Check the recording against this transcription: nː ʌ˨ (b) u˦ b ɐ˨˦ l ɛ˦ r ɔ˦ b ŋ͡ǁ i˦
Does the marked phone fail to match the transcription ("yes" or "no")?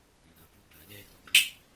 yes